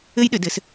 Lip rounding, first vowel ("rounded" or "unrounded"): unrounded